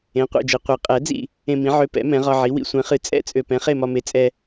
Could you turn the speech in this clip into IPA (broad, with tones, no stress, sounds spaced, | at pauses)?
ẽ˩˥ qʷ ɛ̰˥˩ d͡ʒ e˧ qʷ i˩˥ qʼ ɛ˩˥ d͡z ḭ˥˩ | ẽ˧ m ĩ˩˥ ʕ ø˧ p ɛ̰˩˥ m ɛ̃˩˥ ʁ ɒ˧ ʕ i˩˥ w ḭ˧ sʷ ɛ̃˩˥ χ ɨ˩˥ t͡sʼ ɛ̰˥˩ t͡sʼ ø˧ p ɛ̃˩˥ χ e˥˩ m ɒ˧ m e˩˥ t͡sʼ ɛ˧